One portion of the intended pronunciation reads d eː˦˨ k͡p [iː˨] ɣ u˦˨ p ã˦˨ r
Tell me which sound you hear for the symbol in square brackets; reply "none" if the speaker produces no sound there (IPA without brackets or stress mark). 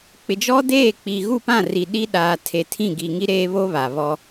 i˨